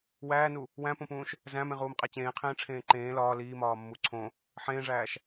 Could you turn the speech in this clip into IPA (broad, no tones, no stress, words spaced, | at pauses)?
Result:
wæːnu | wæ̃põpũːʃ | zæ̃mẽʁuːmqʼæ t͡ɕẽːqʰẽːʈ͡ʂʰẽː ǃẽː lɒː liːmɒːmːu ǀʰõ | ħẽːʐæːʃ